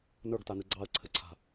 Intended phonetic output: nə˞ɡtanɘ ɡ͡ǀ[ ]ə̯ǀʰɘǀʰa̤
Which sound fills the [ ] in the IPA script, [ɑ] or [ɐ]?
ɑ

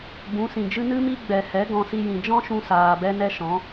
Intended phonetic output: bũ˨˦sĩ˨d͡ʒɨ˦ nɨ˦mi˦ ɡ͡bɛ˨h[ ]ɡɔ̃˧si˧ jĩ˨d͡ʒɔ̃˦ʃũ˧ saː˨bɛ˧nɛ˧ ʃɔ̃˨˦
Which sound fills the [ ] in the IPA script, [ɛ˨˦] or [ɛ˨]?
ɛ˨˦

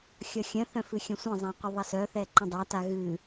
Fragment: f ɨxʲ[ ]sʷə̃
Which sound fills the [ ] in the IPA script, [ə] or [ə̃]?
ə̃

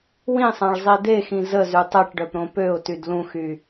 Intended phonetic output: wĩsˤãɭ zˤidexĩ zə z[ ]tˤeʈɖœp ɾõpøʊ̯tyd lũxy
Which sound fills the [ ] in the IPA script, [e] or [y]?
y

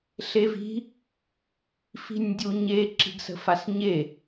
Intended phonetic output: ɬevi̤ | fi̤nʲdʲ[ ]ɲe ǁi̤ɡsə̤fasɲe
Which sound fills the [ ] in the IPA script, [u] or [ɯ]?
u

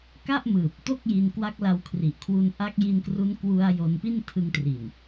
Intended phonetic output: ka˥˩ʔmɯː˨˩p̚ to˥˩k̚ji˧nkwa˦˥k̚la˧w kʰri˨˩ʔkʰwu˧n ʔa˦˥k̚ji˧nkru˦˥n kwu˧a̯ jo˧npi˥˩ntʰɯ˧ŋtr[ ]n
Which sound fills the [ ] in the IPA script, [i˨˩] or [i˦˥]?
i˨˩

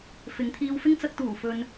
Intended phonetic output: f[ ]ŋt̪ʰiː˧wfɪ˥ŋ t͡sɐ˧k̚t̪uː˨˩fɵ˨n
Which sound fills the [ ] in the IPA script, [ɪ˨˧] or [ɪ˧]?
ɪ˨˧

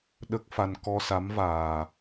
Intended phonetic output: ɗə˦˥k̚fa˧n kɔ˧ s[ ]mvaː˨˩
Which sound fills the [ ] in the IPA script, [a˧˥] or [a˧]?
a˧˥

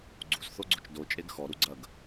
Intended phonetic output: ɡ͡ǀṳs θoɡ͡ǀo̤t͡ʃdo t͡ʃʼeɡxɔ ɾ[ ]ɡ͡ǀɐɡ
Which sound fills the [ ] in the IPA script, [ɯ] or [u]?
u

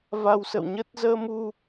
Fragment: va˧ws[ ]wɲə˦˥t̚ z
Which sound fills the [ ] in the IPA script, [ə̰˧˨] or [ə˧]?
ə̰˧˨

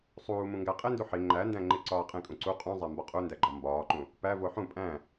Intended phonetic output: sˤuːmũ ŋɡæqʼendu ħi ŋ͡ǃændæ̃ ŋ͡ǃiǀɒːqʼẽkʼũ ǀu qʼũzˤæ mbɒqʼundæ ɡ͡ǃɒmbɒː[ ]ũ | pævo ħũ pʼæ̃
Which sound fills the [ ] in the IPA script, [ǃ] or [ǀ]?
ǃ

